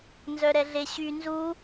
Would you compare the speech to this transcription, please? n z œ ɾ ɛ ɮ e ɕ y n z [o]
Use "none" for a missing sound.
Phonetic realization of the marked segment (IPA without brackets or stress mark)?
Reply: u